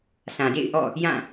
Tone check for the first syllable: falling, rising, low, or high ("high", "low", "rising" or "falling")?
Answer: low